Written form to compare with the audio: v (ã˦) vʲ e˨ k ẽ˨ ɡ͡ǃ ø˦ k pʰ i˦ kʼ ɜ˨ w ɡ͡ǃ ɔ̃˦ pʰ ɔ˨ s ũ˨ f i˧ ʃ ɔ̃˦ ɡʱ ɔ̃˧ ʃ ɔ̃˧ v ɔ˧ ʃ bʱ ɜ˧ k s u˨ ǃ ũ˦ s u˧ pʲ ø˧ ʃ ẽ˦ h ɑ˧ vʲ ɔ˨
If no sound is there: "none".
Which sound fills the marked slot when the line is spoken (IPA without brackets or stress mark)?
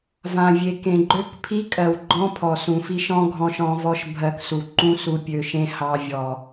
ã˨